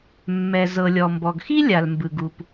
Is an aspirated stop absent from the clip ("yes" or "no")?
yes